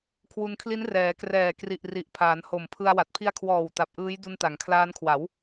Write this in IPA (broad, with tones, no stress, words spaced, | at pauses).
kʰwu˧nkʰli˦˥n rɛː˩˦krɛː˨˩kri˨˩ʔ ri˨˩ʔpʰaː˩˦n ho˨˩mpʰɯ˧a̯wa˨˩t̚ pʰi˧a̯kʰwɔː˨˩w ta˨˩p̚ʔɯː˦˥j du˧nta˩˦ŋkʰlaː˦˥nkʰwa˩˦w